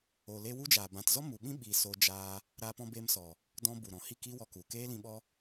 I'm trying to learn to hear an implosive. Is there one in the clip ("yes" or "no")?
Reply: yes